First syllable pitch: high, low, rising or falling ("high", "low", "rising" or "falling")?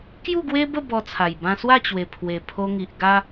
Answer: falling